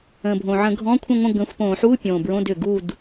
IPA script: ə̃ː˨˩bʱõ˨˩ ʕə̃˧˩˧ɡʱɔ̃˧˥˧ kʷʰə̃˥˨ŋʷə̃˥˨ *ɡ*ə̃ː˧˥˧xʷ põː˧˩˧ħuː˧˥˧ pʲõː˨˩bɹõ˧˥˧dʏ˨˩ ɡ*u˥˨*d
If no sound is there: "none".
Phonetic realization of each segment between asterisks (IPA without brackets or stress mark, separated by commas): ɡ, u˥˨